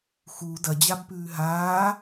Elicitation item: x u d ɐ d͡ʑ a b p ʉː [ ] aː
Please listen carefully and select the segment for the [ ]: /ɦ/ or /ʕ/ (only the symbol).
ɦ